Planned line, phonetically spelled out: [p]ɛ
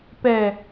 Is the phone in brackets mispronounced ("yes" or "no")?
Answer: no